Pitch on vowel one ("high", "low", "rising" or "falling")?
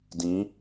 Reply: rising